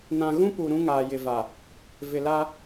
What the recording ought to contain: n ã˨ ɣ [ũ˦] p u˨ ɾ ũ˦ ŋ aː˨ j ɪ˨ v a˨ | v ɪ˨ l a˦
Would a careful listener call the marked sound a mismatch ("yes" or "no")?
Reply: no